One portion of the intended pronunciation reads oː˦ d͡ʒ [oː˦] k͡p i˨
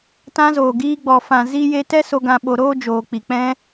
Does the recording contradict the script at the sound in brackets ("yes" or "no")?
yes